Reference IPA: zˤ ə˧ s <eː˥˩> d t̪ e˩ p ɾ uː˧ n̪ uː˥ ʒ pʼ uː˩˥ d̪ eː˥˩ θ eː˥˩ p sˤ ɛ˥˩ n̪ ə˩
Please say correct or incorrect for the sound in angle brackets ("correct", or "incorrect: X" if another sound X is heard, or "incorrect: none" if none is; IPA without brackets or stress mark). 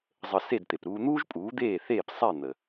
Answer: incorrect: e˥˩